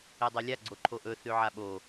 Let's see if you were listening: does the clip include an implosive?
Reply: yes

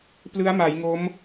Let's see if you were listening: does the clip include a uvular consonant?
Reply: no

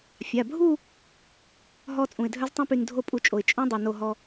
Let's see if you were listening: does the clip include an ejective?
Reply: yes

